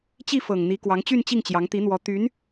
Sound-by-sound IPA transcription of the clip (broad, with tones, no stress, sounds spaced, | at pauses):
t͡ɕ i˥˩ f ɤ˨˩ ŋ n̪ i˧˥ k w ɑ˧˥ ŋ t͡ɕ y˥˧ n t͡ɕ i˥˩ ŋ t͡ɕ j ɑ˧˥ ŋ t̪ i˧˥ n̪ w ɔ˧˥ t̪ y˧˥ n